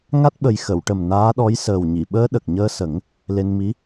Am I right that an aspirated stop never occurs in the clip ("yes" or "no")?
yes